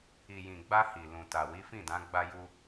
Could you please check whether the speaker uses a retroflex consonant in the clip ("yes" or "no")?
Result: no